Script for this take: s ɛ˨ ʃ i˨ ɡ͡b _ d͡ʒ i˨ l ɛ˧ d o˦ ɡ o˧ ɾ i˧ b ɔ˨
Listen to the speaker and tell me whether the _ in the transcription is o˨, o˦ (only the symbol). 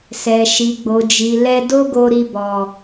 o˨